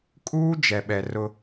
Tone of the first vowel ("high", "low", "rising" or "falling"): high